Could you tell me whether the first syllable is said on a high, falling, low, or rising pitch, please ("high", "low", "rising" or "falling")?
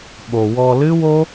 low